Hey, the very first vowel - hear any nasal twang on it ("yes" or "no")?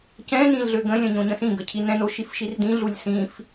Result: yes